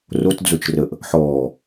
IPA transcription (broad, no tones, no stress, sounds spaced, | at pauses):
r o t d͡z o t͡ʃ r ə ʔ | ħ ɔː